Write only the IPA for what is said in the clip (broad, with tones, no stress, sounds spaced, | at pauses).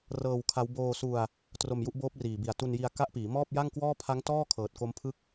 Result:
r ɤː˧ w kʰ a˦˥ w b oː˧ s u˧ a̯ | t r o˧ m j u˥˩ ʔ b oː˦˥ p̚ r iː˨˩ b i˨˩ a̯ t u˧ n j i˧ a̯ k a˦˥ ʔ p iː˩˦ m ɔː˥˩ p̚ j a˥˩ ŋ k w ɔː˥˩ pʰ a˦˥ ŋ t ɔː˥˩ kʰ ɤː˨˩ t̚ k o˦˥ m pʰ ɯ˥˩ k̚